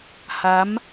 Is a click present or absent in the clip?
absent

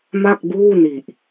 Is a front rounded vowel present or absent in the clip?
absent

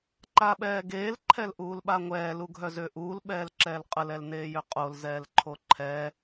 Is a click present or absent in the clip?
present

